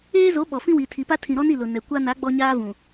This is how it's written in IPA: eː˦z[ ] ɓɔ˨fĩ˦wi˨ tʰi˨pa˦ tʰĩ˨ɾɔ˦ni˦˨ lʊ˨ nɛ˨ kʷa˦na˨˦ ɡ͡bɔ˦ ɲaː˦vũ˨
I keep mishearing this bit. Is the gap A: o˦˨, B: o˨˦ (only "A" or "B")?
B